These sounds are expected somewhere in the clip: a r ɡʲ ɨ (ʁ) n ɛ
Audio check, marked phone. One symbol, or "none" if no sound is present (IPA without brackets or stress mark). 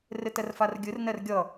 r